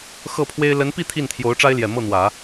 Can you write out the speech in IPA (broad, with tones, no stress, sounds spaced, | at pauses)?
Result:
x ɤ˥˩ pʰ w e˥ ɪ̯ l ə˧˥ n p i˥˧ t̪ʰ i˥˩ n t̪ʰ j o˧˥ ʊ̯ ʈ͡ʂ a˥ ɪ̯ l j ɛ˨˩ m ɤ˥˩ n̪ w ä˨˩˦